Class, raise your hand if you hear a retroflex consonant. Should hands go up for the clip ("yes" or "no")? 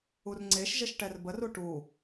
yes